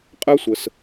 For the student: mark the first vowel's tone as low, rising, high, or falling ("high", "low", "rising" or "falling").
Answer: high